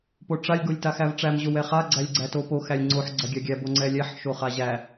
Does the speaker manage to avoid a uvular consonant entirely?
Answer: no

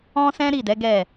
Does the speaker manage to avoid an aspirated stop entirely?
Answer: yes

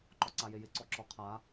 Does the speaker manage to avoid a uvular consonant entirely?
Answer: no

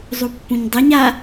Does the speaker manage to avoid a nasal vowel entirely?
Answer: no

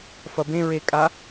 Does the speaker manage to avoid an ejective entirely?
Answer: no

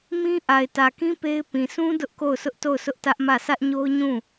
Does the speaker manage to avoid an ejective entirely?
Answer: yes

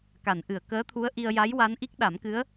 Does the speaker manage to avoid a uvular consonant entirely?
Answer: yes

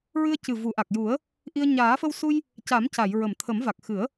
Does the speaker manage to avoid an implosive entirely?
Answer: yes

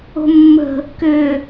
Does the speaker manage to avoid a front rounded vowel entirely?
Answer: no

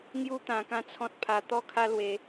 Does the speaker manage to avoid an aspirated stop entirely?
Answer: no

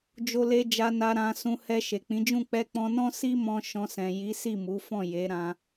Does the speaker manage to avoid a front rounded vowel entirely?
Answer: yes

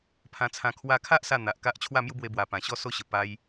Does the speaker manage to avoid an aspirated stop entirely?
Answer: no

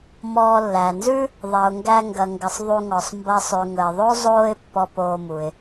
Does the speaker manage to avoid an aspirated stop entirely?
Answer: yes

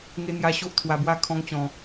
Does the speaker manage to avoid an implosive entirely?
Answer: yes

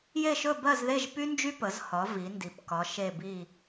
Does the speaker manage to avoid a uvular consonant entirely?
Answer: yes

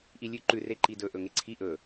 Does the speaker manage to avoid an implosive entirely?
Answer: yes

